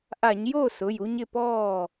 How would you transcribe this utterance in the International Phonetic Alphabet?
ʔa˧˩˧ɲjo˥˩sʊ˩˧˩j u˦ɲɪ˥˩pɔː˥˩

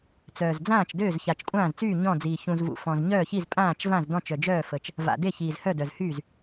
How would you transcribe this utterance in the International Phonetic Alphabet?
t͡sœː˨˩zd͡zãː˥˩t͡ʃ døː˥˩zça˨˩t͡ʃkʷʼãː˥˩zt͡syː˥˩ ɲɔ̃˥˩d͡ziː˨˩ çũ˨˩zvṵ˨˩ fɔ̃˨˩z ɲœː˥˩çi˥˩z pʼãː˥˩t͡ʃvã˥˩z dɔ̃˥˩t͡ʃœ˨˩d͡ʒœː˥˩fə˨˩t͡ʃ | va̰˨˩ de˥˩çiː˨˩zhœ˥˩ dœ˨˩zhyː˥˩z

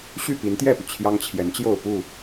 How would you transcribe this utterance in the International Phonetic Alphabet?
ɕy˥˨pi˨˦nt̪jɛ˥˨py˩ t͡ɕʰjɑ˦ŋt͡ɕʰjɛ˨˦nt͡ɕjo˥˨ʊ̯ pu˥˨

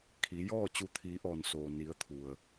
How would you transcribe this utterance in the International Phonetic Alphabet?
kʰi˩˧jɔː˥˨ t͡ɕu˧˩t̪ʰiː˩˧ʔɔː˩n soː˩ni˩˧ə̯t̪ʰu˩ə̯

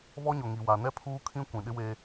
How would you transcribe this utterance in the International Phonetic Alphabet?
βɔ˦ɲʊ˨ ŋi˨wa˨nɛ˦pʰuː˦ kʰĩ˦ kʷĩ˨ɗɪ˦we˦

